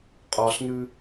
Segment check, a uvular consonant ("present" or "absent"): present